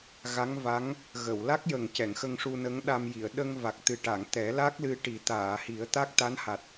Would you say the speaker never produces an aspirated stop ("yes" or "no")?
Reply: yes